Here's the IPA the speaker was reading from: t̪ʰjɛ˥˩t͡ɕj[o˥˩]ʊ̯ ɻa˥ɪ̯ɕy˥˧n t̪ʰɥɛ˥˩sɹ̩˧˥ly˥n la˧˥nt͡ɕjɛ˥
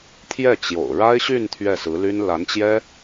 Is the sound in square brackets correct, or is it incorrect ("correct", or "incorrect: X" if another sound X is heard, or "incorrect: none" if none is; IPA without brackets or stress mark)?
incorrect: o̰˨˩